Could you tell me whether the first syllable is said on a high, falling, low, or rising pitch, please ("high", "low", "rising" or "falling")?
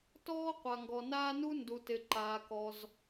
high